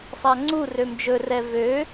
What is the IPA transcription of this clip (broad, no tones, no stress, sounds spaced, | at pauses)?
sˤ a ŋ͡ǀ u r ø m d͡ʒ ɵ r ɛ v ø